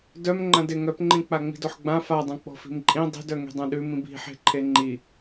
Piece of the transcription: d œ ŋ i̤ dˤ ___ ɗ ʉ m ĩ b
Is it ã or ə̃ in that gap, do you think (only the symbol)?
ã